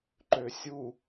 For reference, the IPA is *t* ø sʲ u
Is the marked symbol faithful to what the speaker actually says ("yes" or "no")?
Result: no